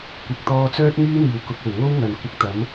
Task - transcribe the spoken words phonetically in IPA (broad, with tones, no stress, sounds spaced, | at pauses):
kʷ ɪ˨ k̚ t̪ ɔː˧ t͡s œː˥ t̚ ŋ yː˥ n̪ iː˨˩ w k ʊ˨ k̚ o˨˩ w ŋ o˥ w ŋ ɐ˨˩ n kʷ ɪ˧ k̚ t̪ ɐ˨˥ m